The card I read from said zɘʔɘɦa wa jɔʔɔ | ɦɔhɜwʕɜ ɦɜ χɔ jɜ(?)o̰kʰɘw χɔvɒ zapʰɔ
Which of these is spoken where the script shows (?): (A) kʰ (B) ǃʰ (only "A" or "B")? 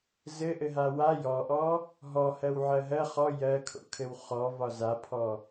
A